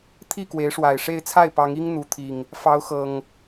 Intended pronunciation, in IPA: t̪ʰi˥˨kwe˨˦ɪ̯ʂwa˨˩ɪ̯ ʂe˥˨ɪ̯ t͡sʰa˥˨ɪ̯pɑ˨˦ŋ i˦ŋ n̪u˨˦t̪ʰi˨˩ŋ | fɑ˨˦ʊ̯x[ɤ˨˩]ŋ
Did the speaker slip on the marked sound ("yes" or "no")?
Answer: no